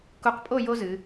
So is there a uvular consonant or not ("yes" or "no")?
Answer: yes